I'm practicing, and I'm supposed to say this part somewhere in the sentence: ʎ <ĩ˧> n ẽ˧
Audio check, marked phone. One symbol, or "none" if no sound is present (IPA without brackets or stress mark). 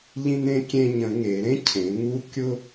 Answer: ĩ˧